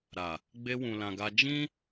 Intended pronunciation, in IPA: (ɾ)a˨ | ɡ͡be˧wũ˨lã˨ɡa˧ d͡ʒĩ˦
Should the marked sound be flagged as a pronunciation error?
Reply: no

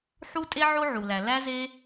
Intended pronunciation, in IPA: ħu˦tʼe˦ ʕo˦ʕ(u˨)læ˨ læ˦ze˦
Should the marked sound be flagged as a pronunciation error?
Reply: no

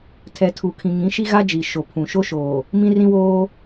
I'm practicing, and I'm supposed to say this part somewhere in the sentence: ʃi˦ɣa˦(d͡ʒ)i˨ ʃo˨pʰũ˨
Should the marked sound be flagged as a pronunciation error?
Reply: no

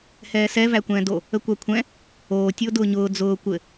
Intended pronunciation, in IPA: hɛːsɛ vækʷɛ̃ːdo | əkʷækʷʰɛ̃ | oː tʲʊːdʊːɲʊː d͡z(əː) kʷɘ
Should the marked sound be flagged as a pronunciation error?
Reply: yes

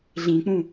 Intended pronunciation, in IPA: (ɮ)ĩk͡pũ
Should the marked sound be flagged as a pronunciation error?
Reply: no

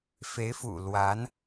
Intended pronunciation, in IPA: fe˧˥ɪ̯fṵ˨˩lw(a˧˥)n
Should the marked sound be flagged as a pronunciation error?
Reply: no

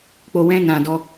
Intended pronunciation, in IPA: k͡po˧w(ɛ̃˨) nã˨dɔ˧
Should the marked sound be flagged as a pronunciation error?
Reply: yes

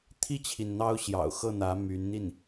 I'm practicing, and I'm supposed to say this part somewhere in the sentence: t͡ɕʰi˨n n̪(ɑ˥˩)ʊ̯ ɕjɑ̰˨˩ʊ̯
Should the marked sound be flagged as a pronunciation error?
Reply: yes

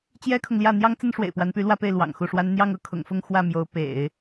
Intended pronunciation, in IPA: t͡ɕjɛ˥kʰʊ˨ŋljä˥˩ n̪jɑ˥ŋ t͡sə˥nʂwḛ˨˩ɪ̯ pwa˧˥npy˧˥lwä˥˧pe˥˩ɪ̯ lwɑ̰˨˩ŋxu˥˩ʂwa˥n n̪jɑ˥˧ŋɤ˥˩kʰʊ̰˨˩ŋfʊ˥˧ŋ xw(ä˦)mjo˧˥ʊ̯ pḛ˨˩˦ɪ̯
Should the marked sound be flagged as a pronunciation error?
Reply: yes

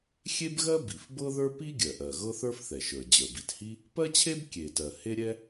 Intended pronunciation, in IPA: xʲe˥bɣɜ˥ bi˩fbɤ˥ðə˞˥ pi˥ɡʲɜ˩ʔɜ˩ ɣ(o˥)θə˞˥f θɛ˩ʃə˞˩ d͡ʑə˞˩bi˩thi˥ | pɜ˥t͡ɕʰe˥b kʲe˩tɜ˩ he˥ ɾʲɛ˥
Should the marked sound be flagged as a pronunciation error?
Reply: yes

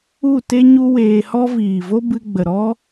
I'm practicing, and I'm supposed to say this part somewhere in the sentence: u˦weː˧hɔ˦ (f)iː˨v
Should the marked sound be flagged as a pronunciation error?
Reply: yes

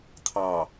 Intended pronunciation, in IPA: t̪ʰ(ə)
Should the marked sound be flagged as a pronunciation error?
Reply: yes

